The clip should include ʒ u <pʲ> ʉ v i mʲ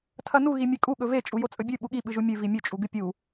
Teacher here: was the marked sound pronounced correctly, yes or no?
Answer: no